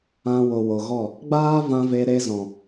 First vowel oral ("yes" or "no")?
no